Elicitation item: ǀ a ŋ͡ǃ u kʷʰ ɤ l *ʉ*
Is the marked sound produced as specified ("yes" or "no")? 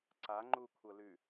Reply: yes